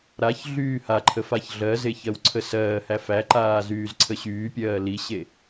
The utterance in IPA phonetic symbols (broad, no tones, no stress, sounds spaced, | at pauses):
ɾ a ç ɮ yː h a ǃʰ ə f a ç ɮ ɜ z e ç ɜ w ǀʰ ə s ɜː h æ f æ ǃ aː z yː z ǀʰ ə ɕ yː pʲ ɜː l i ɕ e